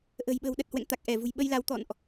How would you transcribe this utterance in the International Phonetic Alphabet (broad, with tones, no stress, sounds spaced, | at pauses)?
ʔ ə̤˨˩ j ɓ ə̤ː˨˩ w ɗ ə˨˩ t̚ h w ɛ̰˧˨ ŋ t̪ a˨˩ k̚ ʔ ɛ˧˩ v ṳ˨˩ j ɓ ə˧ j l a˨˦ w t̪ ɔ̰˧˨ n ʔ